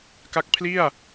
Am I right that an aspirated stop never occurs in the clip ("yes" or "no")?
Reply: no